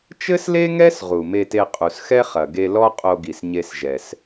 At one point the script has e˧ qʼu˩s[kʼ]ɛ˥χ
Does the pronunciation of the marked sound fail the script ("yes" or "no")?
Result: yes